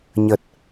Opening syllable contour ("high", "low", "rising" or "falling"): low